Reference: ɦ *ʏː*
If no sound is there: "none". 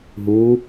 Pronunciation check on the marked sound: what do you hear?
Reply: uː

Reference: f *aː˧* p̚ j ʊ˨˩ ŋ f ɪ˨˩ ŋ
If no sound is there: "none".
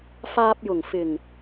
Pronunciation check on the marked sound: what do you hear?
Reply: aː˧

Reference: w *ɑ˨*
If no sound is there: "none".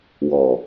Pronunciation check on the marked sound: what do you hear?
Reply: ɔ˨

